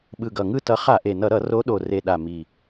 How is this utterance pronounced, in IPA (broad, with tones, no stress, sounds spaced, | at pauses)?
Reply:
ɓ ɯ˨˩ ɡ ʌ˨˩ ŋ ɯ˦˨ t ʌ˨˦ χ a˧˩˧ ʔ e˨˩ n ʌ˧˩˧ ɾ ʌ˧˩˧ r o˨˦ ɗ o˨˩ r e˨˩ ɗ a˨˩ m i˨˩